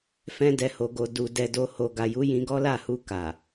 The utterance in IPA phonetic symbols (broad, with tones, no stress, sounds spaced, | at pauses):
f ɛ̃˧ d ɛ˨ h o˨ ɡ o˨ d u˨ d ɛ˧ d o˧ h o˨ ɡ a˨ j u˨˦ j ĩ˧ ɡ ɔ˦ l a˦˨ h u˧ k a˨